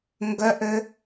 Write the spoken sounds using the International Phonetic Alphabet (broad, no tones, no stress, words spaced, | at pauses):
ŋɡœʔø